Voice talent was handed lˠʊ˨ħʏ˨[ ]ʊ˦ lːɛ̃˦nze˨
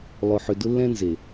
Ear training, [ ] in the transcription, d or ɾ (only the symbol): d